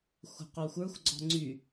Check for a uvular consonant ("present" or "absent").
present